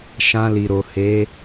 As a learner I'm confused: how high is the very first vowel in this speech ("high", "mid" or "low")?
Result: low